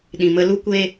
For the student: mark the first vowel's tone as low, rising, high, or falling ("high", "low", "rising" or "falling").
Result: low